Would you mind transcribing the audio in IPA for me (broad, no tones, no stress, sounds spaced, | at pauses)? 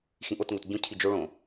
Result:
x ĩ ʔ o t ŋ o t ɟ ũ cʰ i d͡ʒ o ɭ õ